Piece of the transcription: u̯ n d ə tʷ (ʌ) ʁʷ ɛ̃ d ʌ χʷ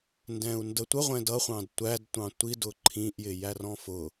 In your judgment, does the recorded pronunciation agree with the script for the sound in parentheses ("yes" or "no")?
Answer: no